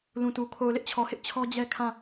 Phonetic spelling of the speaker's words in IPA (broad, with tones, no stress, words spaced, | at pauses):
lũ˨tu˨ kʰo˨ʊ̯lɪ˦ʔt͡ɕʰɔ˨hɪ˦ʔ t͡ɕʰɔ˦d͡ʑɛ˦ kʰã˦˨